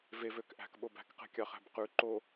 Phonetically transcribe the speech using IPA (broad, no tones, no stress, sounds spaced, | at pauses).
v e v ø k ʔ æ̤ k ɓ o b æ̤ k q ɛ̤ kʲ ɑ χ æ̤ b q ʉ ǃ o